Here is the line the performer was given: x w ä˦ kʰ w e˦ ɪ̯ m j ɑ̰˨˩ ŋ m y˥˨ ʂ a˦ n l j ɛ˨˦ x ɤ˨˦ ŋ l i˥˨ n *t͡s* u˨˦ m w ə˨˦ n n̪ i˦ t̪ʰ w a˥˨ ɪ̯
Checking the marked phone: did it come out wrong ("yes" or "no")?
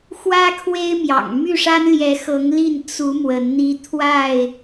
no